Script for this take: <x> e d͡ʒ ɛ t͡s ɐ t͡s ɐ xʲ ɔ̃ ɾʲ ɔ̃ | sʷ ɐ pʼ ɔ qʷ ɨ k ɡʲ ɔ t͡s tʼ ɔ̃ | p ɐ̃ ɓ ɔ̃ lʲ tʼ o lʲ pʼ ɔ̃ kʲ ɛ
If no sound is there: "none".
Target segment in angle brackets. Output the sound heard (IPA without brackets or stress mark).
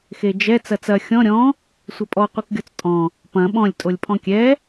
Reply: x